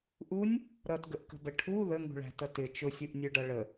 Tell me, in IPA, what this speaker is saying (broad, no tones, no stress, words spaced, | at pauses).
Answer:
ʔunʲ | ɾʌtɡəʔkə̤bə ʈʰu ðəŋṳɭæ̤tʌ tɪ t͡ʃʊsʲuʔnʲə˞ɖʌ ɭə